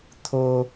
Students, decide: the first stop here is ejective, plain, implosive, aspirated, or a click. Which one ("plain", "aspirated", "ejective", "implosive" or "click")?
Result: aspirated